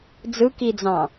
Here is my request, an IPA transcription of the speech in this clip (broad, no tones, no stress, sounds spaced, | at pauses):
d͡z ɯ k i d͡z ɑ̃